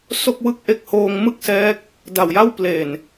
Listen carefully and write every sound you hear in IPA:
s o˥˩ k̚ w ɯ˥˩ k̚ ʔ e˦˥ k̚ h oː˧ ŋ m ɯ˥˩ k̚ s ɛː˦˥ k̚ | d a˨˩ w j a˥˩ w p l e˨˩ n

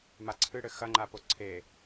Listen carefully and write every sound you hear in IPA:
m a ǀʰ ɨ ɽ ɘ x ɐ ŋ͡ǃ a p o ǀʰ e

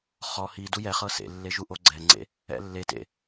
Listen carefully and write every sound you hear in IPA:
χ ɔ h i d u j ɛ χ ɤ s ḛ lː e ʒ u ʔ o ɡ͡ǀ ɛ ŋ͡ǀ ḛ | ɛ̰ lː e t ḛ

